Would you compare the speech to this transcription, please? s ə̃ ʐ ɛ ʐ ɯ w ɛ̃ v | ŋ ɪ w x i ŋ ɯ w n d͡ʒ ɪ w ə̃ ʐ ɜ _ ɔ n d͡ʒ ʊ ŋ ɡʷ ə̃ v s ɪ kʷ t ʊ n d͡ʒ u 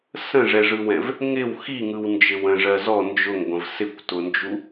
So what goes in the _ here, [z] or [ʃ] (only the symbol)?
z